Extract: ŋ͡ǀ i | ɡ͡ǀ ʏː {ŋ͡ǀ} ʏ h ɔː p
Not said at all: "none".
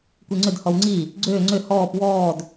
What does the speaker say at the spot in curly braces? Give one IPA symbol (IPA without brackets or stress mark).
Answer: ŋ͡ǀ